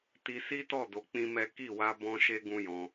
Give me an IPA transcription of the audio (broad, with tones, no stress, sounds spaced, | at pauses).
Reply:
t i˧ s i˦ t ɔ˦˨ d o˧ k͡p ĩ˦ m ɛ˦ k i˦˨ w a˧ b ɔ̃˧ ʃ e˧ ɡ ũ˦ j ɔ̃˧